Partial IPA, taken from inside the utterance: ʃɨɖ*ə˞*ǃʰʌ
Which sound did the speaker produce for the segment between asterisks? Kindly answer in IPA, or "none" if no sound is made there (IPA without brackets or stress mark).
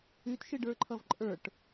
ə˞